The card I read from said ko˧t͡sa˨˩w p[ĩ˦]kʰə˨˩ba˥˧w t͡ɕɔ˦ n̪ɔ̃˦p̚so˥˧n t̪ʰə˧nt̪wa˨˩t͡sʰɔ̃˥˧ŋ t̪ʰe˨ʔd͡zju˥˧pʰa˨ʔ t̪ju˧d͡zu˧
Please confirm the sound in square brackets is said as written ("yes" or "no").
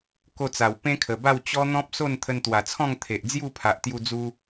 no